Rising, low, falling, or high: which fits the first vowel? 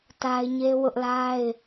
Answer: high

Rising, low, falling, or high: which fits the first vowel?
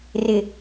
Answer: low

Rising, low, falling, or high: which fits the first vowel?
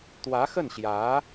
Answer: rising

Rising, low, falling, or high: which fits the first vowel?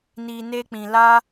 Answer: low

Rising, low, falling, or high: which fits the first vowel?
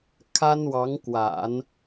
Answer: high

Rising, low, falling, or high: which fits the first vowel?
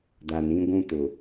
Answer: low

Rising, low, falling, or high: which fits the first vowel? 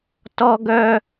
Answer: high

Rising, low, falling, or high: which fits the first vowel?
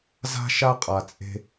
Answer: high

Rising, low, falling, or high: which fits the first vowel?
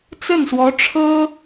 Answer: falling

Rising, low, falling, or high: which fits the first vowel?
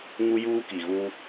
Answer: high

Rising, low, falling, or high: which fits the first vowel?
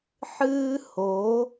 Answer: high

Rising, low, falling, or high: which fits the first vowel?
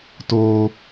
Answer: high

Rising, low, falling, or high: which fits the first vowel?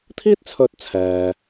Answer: high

